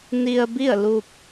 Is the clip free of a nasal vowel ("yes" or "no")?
yes